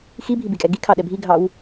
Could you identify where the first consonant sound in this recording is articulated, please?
velar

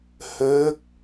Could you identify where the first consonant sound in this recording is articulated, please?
glottal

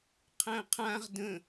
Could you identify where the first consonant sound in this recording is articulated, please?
uvular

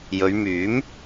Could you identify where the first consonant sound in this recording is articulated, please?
palatal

